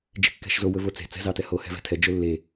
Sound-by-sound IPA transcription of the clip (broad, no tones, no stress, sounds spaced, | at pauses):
d͡ʒ e̤ kː ɛ̤ ʃ z o w ɵ v o t͡s e̤ t͡s ɛ̤ z ɑ t ɛ h o h ɛ̤ v ɛ̤ tʰ ɛ d͡ʒ ɵ lː e